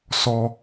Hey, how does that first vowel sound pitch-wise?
low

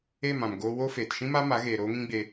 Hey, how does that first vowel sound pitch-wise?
falling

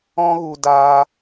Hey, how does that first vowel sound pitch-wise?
high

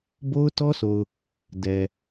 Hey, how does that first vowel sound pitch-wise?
high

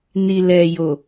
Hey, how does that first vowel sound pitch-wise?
low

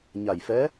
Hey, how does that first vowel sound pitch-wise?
low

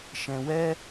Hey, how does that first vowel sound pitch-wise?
low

